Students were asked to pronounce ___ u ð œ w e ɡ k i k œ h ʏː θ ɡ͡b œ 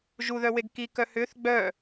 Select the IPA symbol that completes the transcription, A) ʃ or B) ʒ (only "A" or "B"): B